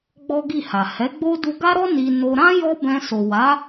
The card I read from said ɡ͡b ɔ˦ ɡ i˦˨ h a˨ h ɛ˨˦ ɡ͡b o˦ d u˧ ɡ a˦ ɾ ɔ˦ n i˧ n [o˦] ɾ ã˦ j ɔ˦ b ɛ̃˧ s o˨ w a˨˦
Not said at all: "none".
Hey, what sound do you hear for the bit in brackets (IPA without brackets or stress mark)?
o˧